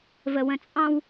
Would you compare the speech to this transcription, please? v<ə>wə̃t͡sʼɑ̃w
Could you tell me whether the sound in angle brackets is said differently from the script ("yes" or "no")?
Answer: no